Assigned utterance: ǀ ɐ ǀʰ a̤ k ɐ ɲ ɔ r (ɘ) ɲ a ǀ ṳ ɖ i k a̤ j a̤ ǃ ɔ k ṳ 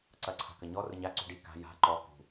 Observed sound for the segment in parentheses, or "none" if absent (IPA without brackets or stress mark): ɘ